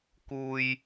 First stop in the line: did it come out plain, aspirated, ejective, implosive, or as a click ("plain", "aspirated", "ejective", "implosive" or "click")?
plain